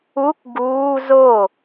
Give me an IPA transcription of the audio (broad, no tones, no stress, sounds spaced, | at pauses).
u k ɡ uː z o